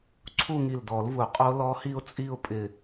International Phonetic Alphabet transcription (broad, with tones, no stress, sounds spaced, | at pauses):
ǀʰ u˥˧ ŋ i˧˩ l d ɔ˨˩˦ l v u˨˩˦ qʼ o˦˥ l ɔ˦˥ h i˥˧ ʊ̯ t͡sʼ i˥˧ ʊ̯ pʼ ɪ˧˩